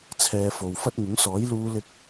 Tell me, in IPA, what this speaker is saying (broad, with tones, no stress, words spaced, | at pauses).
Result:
t͡sʰɛː˧fo˨w fɐ˥t̚ŋʊ˨˥ŋsɔː˨˥j luː˥lɪ˥k̚